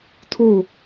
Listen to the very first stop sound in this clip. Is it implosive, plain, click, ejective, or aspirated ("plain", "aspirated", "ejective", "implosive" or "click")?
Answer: aspirated